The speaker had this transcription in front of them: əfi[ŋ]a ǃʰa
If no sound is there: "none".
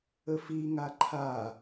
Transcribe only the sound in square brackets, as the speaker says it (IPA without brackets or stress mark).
ŋ